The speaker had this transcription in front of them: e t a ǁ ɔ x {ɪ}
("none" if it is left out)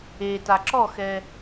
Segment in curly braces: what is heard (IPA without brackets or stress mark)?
ɛ